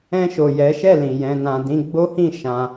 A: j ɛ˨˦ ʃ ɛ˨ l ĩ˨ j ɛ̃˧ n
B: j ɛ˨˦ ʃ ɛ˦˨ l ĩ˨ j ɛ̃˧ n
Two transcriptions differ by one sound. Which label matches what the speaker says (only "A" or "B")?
B